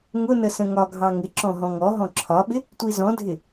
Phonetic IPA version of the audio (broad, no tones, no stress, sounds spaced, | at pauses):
ŋ ʊ n ə s ə̃ ŋ ɒ ɡʱ ɑ ŋ ɪ ǁ ɔ̃ ɦ ɔ̃ ŋ ɔ ɦ ɔ̃ ǁʰ ɒ ɓ ɪ | tʷ i z ɔ̃ dʱ ɪ